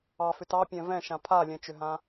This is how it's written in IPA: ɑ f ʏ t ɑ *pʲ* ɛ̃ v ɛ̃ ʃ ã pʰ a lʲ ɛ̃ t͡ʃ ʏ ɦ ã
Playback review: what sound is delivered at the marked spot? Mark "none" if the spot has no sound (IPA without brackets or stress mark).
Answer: pʲ